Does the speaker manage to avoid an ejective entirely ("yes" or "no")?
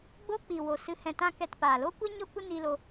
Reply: yes